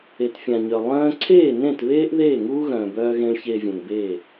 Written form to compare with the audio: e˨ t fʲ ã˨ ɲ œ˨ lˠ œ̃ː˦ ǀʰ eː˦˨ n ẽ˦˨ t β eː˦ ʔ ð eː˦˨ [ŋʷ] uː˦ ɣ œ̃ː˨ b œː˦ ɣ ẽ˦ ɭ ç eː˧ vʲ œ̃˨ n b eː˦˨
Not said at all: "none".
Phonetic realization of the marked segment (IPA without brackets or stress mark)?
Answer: ŋ